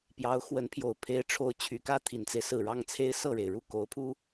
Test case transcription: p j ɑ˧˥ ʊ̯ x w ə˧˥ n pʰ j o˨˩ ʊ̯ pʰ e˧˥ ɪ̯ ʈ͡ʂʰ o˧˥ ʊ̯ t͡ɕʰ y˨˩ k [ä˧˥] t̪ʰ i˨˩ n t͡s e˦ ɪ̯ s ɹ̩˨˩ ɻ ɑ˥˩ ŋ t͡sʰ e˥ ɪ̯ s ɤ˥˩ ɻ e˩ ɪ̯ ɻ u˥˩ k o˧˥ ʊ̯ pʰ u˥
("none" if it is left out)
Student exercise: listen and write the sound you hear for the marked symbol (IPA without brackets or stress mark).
ä˥˩